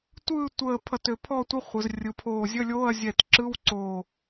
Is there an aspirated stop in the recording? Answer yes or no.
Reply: yes